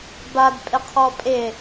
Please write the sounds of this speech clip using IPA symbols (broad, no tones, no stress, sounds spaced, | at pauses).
b a d pʼ ɪ qʰ ɔ pʼ ɪ